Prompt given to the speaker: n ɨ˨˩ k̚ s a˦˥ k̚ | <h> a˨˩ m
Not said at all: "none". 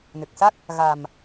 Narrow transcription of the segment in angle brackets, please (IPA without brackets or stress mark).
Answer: ɣ